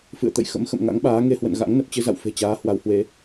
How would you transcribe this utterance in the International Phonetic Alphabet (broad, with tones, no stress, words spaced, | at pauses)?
fɨ̰˧˨ə̯t̪ə̰˧˨jxə̰˧˥m xə̰˧˨mŋa̰˧˥ŋɓaː˨˦ ŋe˧hwə̰˧˨nɣa̰˧˥ŋ nə˨˩p̚t͡ɕɨ˧za̰˧˨w fe̤˨˩t͡ɕaː˨˦ hwa˨˦whwe˨˦